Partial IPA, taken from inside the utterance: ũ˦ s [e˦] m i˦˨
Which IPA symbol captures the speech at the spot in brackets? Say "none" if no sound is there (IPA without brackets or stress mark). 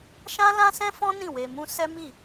ɛ˦